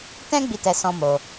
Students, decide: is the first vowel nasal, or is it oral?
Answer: nasal